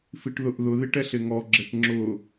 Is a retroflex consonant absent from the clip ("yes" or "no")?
no